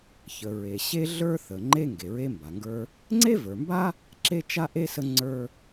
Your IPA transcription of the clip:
çə˩ɹe˩ ɕe˥ɮə˞˥θə˩ ŋ͡ǃe˥ ŋɡe˩ɹe˥mba˩ŋɡə˞˥ | ŋ͡ǀe˥və˞˩mba˥ | ǁe˥t͡ʃa˥ʔe˥ sə˥ŋ͡ǀə˞˥

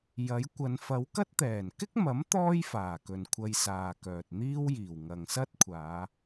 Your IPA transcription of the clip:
jɐ˨˥jkʷɐ˨˧n fɐ˨˧wkɐ˥t̚t̪ɛː˨˩n kɪ˥k̚mɐ˨˥m t̪ɔː˥jfaː˨˩kɵ˨n kʷʰɐ˧jsaː˨kœː˨t̚ n̪iː˥wjiː˨˩w ŋɐ˨ŋsɐ˥t̚kʷʰaː˨˧

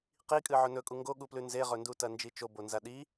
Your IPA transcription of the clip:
qikʼɨ ʕɵnɵkʼu ŋɡoɠuplʉ nzeʁɵndutɐ nd͡ʒit͡ʃo bonzaɗi

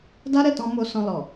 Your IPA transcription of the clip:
da˦ɾɛ˦˨tɔ̃˧ mo˧sɔ̃˧lɔ˨

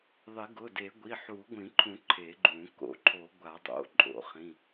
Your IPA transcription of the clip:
ðˤɪ˨˩˦ɡʊ˩˧˩de˨˩˦ ɡʷi˩˧˩ħu˨˩˦ɡʷĩ˨˩˦ǃʰũ˨˩˦ ǃʰe˨˩˦ɡ͡ǃũ˨˩˦ ko̰˨˩˦ǃʰo˨˩˦ ɡʷa˨˩˦dˤo̰˩˧˩ ǃʼo̰˨˩˦χĩ˩˧˩

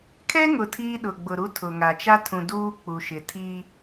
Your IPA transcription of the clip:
kʰɛ˦ŋʊ˨ tʰiː˦ɗʊ˨ɡ͡bʊ˨ɾu˦ tʰʊ˨ŋa˨ t͡ʃa˦tʰũ˨ duː˦k͡pu˨ʃɪ˨ tʰi˦

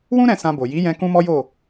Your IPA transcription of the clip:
wũ˦ ɾɛ̃˧ sã˧bo˨ ji˨˦jɛ̃˧ kũ˦mɔ˦jo˦˨

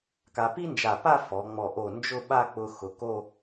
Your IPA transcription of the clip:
ka˧ pi˥nd͡ʒa˧˩pa˥˧ fɔ˩˧ŋ͡mɔ˧˩ ʔo˧˩nd͡ʒʊ˥˧ ɓa˥˧k͡pʊ˧xʊ˩˧ ko˥˧

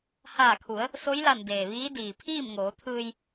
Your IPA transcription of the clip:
haː˧˩kʰu˩˧ə̯ | so˧˥jla˧˩n deː˩ʋiː˧˥ diː˩pʰiː˥˨mŋoː˩˧t̪ʰɯː˧j

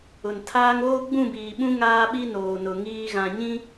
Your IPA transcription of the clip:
ʊ˨n tʰaː˦ŋ oː˦ɡ͡bũ˦˨biː˨ɓũ˦ ŋaː˦ɓi˦noː˨nʊ˨ ŋiː˨ ɣã˨ɲĩ˦

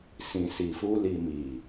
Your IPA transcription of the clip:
sĩ˨si˨fu˧li˨ mi˨

